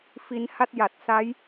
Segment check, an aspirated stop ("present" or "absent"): absent